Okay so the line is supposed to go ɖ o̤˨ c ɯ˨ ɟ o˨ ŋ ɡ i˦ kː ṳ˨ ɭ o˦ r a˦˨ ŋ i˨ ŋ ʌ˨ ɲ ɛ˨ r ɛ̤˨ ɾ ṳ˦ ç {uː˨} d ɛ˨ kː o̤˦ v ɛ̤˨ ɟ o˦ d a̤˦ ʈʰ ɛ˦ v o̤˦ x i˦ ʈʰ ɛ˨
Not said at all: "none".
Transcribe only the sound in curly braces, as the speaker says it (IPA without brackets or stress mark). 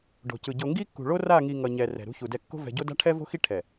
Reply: u˨